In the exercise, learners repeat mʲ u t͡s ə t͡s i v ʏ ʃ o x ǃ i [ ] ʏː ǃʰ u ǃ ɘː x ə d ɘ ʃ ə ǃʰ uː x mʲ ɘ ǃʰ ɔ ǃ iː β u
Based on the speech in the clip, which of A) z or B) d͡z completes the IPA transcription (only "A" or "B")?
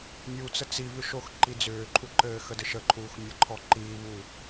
B